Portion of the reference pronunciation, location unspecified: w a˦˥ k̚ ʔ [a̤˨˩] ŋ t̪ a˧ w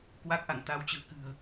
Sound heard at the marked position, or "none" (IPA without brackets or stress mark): a̰˧˨